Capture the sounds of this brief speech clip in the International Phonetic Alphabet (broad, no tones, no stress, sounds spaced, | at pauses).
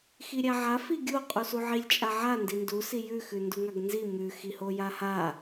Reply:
x i ɾʲ a ʕ a f i ɡʲ o qʼ u s u ʕ i lʲ t͡ʃʼ a ʕ a n d i n d u s i j ʉ x ʉ n d u ŋ a ɡ n z i m ʉ x i h o j a h a